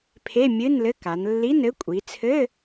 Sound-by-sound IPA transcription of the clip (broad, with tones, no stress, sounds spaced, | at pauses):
pʰ e˧˥˧ mʲ ɨ˧˥˧ n l ɘ˧˥˧ k a˩˧ n lː i˧˥˧ n ɘ˦˥ kʷʼ i˩˧ t͡sʰ ɘ˧˥˧